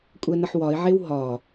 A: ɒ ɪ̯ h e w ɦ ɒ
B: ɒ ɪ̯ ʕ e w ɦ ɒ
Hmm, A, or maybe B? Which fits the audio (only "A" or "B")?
B